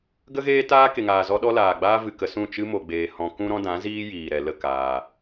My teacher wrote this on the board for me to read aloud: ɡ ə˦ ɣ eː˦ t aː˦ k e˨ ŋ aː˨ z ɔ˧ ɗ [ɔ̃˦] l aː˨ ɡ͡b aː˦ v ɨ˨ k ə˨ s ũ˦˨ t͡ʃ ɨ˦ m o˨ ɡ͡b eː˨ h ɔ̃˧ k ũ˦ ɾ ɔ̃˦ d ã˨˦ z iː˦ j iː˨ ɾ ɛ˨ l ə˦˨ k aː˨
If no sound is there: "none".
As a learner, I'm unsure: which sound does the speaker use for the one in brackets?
ɔ˦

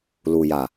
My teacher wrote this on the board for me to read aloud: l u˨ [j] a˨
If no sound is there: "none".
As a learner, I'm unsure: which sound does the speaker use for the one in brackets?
j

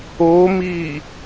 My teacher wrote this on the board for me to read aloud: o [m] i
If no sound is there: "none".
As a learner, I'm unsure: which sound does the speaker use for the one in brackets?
m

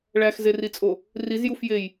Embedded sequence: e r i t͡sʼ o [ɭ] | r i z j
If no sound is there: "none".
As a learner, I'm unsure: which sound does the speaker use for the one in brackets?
none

